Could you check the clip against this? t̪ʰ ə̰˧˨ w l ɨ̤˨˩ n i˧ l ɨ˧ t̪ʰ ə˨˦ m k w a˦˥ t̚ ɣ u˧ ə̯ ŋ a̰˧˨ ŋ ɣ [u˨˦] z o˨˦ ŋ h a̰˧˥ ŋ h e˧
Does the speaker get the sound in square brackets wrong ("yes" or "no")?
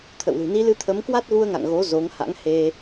yes